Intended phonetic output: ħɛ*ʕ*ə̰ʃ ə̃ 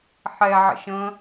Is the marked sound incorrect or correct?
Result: correct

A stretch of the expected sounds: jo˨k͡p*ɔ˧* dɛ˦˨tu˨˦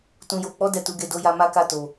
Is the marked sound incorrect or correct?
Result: incorrect: ɔ˨˦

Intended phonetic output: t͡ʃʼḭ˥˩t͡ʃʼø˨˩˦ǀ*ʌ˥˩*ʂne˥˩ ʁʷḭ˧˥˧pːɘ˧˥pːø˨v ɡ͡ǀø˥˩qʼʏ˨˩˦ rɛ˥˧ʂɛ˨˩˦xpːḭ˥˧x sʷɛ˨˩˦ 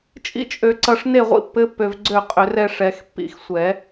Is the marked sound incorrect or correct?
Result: incorrect: ʌ˨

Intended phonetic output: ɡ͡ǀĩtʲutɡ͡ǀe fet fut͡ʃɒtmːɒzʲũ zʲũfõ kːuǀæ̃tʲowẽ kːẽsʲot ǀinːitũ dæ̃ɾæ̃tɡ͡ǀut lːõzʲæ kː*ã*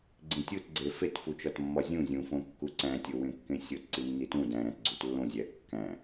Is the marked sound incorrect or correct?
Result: incorrect: æ̃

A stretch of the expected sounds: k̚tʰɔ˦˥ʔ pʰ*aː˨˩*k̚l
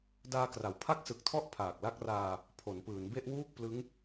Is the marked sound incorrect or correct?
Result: correct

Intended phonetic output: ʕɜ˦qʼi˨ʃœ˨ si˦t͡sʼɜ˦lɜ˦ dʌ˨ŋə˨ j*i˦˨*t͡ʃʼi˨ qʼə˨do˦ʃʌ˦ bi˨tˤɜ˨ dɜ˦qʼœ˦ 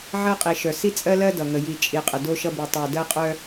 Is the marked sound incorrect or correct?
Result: incorrect: i˨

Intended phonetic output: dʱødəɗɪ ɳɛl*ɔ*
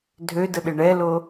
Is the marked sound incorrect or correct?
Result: incorrect: o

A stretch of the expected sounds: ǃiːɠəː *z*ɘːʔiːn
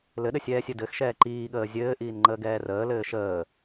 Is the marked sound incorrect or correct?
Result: incorrect: zʲ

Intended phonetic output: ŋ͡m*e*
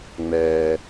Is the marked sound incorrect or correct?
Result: incorrect: ɛ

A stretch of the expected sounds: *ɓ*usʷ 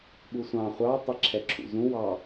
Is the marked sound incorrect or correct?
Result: correct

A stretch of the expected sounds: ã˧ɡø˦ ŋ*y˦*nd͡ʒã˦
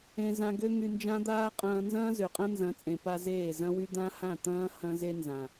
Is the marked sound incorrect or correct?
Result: incorrect: y˧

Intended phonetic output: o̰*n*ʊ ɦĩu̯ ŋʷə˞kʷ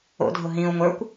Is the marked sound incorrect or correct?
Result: incorrect: dʱ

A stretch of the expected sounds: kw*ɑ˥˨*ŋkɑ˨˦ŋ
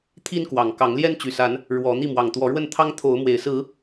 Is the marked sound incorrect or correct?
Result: incorrect: ɑ˨˩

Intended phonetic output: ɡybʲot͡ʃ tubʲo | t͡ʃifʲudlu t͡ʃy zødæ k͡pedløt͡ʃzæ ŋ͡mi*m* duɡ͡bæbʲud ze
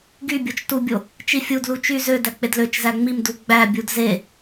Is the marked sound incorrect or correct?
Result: correct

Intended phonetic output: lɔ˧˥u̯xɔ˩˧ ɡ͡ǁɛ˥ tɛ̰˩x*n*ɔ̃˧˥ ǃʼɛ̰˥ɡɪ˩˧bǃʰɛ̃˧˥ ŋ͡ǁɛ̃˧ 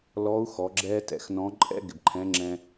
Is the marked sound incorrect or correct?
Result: correct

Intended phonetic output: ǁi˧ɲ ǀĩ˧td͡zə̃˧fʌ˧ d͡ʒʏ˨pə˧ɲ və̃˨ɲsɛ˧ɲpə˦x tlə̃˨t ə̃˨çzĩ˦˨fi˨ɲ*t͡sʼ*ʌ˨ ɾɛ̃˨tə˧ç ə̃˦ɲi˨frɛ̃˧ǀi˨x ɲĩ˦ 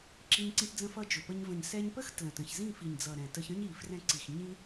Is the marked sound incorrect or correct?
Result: incorrect: d͡z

